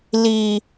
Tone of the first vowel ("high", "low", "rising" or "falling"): low